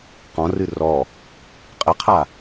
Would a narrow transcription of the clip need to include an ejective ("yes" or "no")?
yes